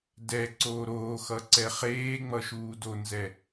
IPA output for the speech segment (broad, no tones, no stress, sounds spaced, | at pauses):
d ɛ ǀ oː ɾ oː x ʌ ǀ ɛ χ eː ŋ͡m ʌ ʃ uː d o n z ɛ